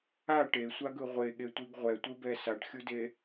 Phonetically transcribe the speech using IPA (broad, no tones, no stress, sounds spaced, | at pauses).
a ʈ e sʷ a ɡ ɯ ʁʷ e ɠ e tʷ i ɡ ʁʷ ɛ tʷ ɯ b ɛ s a ʈ xʲ u d e